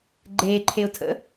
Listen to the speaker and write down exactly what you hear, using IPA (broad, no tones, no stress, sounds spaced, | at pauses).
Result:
ɡ͡ǃ eː ǃʰ e ʊ̯ tʰ ə̰